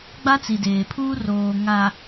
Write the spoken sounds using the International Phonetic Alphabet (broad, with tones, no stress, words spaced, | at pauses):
ɡ͡ba˦t͡si˨ deː˨pʰuː˦ roː˨ ŋa˨